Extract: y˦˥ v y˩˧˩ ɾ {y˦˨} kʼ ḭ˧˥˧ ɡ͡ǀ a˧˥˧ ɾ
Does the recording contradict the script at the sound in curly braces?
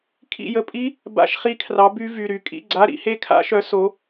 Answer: no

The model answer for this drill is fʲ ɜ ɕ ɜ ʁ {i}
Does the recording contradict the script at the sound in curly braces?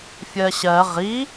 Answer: no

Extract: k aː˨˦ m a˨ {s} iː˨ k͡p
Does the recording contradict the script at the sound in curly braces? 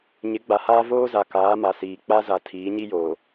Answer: no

